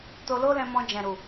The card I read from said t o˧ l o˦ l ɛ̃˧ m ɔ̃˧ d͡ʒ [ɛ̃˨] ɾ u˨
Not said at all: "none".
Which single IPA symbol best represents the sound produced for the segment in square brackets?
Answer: ɛ̃˨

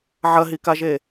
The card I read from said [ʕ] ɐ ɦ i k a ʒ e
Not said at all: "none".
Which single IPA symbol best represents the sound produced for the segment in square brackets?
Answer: ʕ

